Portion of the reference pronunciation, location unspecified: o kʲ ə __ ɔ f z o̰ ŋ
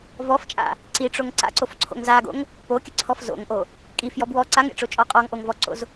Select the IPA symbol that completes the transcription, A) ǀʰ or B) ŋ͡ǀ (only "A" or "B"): A